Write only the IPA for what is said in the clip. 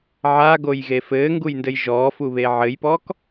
ʕ a ɡ o j ɣ e f ɘː ŋ ɡ u j n d ɘ j ʒ ɔː f u β e ʕ ɘ j p ɔː k

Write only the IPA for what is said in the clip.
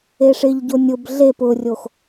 e ʂ ɪ ʎ ɟ o nʲ ʊ b ɮ e p ʊ rʲ o x

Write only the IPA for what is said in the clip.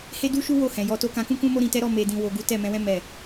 h e˦ d u˦ ʃ u˦ w o˦˨ h ɛ̃˨ j ɔ˧ t o˦ k ã˧ k ũ˦ k ũ˦ m o˦ ɾ ĩ˧ t ɛ˦ ɾ ɔ˦˨ m e˧ d ĩ˧ w o˧ ɡ u˦ t ɛ˦˨ m ɛ̃˧ w ɛ̃˦ m ɛ˦˨

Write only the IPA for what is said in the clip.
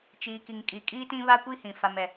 t͡ʃ iː˨ k i˨ ŋ kʼ i˨ kʼ iː˦ t ĩ˦ β a˦ kʷ i˦ h ĩ˨ f a˨ m ɛ˨

